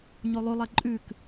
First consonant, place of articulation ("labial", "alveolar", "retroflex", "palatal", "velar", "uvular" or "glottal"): palatal